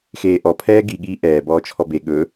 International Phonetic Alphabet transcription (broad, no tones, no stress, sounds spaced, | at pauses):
x eː ʔ ɔ pʰ ɛː ɡ i ɠ iː ʔ ɛː b ɔː t͡ʃʰ ɔ b e ɠ ɵ